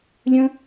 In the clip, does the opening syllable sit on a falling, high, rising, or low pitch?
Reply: high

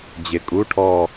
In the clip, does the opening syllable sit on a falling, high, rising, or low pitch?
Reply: rising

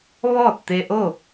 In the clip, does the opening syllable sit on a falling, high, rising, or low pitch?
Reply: falling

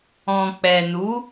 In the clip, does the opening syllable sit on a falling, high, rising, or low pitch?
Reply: low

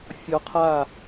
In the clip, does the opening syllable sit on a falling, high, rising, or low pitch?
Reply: rising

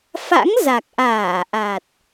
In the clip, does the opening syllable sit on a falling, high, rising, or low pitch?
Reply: rising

